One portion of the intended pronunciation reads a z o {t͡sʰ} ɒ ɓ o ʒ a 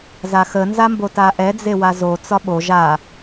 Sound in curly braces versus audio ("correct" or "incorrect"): incorrect